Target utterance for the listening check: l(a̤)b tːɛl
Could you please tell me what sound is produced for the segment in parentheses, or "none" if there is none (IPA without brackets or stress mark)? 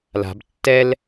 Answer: a̤